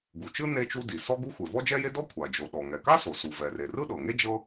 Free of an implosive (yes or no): no